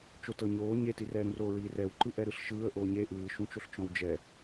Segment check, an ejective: absent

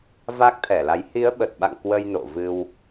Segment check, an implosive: present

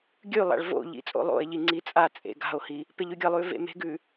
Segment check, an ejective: present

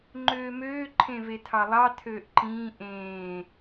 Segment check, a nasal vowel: present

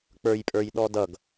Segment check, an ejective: present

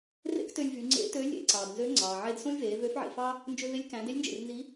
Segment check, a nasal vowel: present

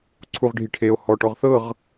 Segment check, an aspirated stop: present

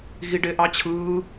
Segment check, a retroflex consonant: present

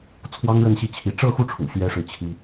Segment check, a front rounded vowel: absent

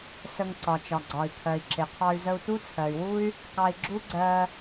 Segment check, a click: present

